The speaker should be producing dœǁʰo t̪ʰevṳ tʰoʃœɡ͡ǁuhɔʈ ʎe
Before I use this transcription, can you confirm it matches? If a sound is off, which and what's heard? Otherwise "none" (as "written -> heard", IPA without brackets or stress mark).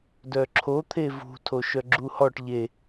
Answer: none